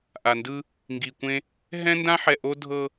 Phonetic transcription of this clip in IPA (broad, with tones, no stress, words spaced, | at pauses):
ʔa˨ndɯ˦ | ŋɡi˨kʷẽ˦ | ɦɛ̃˦ndã˦ħɛ˨ ʔo˦dʱɤ˦